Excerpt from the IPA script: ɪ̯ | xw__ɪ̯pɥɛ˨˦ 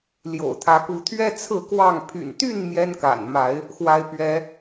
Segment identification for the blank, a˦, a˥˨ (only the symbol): a˦